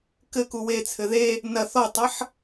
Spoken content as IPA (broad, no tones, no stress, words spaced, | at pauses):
kɘ kuwet͡sʰɘ ðe | nɐ θɔtˤɐħ